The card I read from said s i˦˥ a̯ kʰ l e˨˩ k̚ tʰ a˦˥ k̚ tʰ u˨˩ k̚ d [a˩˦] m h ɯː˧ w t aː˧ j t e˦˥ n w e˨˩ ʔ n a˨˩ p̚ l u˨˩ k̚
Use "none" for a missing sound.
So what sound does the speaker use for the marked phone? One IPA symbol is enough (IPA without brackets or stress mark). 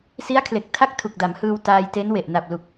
a˩˦